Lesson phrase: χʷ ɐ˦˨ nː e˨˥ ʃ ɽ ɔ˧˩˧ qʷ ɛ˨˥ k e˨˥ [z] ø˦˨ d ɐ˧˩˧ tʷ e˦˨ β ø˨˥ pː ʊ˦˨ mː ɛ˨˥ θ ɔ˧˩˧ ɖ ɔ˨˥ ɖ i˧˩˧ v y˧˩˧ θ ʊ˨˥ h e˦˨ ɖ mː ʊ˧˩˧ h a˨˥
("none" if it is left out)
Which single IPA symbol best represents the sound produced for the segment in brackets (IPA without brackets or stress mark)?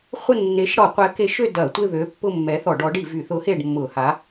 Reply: ʃ